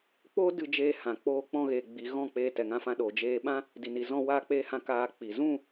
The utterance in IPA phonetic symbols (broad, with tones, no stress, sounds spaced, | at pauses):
k͡p oː˦ d ɨ˧ d͡ʒ eː˧ h ã˨ k͡p oː˧ k͡p ɔ̃˧ ɣ eː˨ ɡ͡b i˨ ɣ ɔ̃˦˨ k͡p eː˧ t ɛ˨ ŋ ã˧ f ã˧ ɗ oː˨ d͡ʒ eː˧ ɓ ã˦ | d i˨ n i˨ z ɔ̃˧ w aː˧ k͡p eː˧ h ã˧ k aː˧ k͡p i˨ z ũ˦˨